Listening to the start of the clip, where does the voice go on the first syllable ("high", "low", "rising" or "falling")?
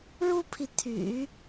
high